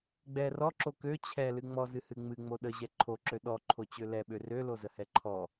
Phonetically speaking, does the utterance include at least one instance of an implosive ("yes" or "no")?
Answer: yes